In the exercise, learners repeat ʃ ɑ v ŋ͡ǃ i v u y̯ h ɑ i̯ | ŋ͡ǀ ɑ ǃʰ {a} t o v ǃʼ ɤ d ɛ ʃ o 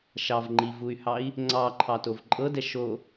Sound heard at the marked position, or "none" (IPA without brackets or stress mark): ɑ